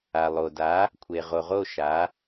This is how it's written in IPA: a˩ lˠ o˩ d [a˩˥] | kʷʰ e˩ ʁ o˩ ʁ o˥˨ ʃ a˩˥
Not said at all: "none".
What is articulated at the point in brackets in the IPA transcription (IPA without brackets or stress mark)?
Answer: a˩˥